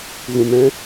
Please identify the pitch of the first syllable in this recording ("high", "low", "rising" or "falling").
low